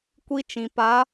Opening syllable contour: high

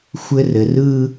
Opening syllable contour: high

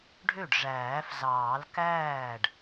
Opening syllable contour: falling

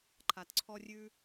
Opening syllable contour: low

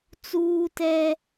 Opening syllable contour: high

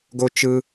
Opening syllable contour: high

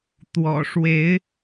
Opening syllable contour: low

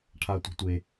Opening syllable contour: low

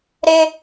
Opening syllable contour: high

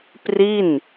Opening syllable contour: falling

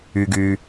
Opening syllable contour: low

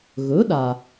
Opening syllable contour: rising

